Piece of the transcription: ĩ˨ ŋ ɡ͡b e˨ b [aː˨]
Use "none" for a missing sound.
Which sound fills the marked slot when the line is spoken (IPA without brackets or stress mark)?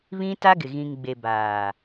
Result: aː˨